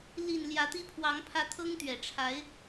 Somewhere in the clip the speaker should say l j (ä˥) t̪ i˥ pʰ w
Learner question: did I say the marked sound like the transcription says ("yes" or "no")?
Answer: no